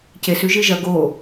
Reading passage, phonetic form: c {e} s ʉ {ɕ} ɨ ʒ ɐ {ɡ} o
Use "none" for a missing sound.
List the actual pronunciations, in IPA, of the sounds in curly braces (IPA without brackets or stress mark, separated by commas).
e, ʒ, ɡ